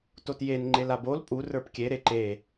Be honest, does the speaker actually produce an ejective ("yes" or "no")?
yes